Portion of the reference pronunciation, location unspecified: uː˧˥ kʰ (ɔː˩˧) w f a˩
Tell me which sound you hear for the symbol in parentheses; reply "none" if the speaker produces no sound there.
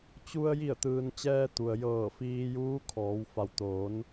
ɔː˩˧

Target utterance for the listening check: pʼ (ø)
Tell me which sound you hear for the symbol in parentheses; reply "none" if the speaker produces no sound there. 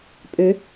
ø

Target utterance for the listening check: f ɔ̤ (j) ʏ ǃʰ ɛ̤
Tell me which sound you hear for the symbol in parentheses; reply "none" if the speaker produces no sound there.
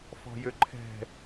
j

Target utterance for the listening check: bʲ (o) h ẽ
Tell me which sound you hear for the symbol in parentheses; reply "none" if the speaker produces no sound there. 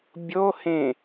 o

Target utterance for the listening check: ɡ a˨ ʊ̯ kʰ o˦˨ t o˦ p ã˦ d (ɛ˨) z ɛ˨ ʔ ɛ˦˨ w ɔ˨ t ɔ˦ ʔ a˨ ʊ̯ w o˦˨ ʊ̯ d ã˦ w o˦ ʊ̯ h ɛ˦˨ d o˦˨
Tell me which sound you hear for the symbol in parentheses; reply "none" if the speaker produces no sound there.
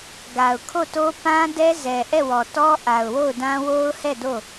ɛ˦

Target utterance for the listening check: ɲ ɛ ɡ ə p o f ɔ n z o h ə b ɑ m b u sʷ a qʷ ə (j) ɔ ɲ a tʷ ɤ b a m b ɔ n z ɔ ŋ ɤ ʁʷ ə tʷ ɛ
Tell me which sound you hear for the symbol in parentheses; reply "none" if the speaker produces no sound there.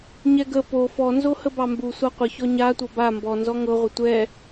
ç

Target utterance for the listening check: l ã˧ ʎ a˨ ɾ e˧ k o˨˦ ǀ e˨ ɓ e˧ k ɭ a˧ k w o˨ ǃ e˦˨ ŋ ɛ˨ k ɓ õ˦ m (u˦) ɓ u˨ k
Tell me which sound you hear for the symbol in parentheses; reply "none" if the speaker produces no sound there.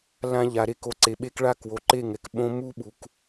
u˦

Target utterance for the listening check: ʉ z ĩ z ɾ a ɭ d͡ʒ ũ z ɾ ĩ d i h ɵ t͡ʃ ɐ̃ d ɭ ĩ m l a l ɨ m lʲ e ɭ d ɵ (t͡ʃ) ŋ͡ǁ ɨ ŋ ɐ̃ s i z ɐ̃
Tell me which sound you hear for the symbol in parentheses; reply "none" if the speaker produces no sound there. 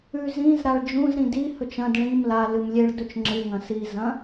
t͡ʃ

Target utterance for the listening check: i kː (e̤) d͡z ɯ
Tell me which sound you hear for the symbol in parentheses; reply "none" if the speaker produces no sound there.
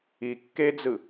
e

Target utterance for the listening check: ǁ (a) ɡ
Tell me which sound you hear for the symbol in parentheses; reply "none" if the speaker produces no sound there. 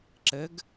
ə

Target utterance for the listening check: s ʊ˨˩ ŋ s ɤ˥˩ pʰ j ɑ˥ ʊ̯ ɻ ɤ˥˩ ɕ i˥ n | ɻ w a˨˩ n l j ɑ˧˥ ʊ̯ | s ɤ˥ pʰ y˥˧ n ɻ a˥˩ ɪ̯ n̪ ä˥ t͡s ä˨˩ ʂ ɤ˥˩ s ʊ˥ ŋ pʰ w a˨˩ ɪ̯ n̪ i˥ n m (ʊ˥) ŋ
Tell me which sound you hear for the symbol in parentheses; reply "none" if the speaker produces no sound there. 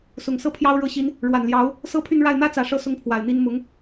ʊ˧˥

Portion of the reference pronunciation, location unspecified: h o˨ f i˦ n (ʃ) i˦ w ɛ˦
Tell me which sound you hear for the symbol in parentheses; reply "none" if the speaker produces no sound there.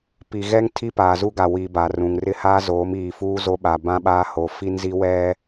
z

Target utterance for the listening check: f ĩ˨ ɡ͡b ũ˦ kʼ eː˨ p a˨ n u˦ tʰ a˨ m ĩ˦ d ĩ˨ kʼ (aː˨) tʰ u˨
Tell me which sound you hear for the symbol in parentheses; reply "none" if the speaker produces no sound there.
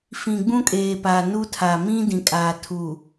aː˨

